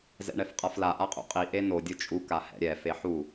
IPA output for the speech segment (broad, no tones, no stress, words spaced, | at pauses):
zɛ̰ɳɛfqʼafla ʔaqʼṵqʼi ʔeno dʲɯt͡ʃʼu kahɛ̰ɾʲɛ feħu